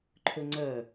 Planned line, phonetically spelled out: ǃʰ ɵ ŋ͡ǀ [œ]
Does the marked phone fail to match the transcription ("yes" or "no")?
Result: no